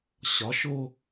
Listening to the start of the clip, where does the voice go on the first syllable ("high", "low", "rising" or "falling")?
rising